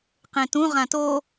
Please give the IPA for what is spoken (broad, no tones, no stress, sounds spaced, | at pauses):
q ẽ t ũ ʁ ã t o